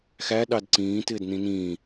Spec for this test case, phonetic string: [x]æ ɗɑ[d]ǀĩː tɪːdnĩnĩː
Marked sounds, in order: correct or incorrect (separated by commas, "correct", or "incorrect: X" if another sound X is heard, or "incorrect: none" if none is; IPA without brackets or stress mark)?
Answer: correct, correct